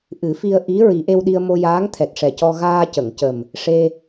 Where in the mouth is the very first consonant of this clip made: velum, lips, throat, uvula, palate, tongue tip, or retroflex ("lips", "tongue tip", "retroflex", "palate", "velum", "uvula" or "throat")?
throat